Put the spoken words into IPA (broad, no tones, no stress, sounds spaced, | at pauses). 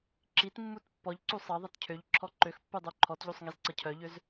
ǁ i t mː u t pː ɔ ʎ ǀ u sˤ ʌ ðˤ ʌ t cʰ ø ʎ ǁʰ ɔ ǃ ø x pː u dˤ u ǃʰ ɔ t ʎ u sˤ ŋ i z ǀ ʌ cʰ œ ʎ ø z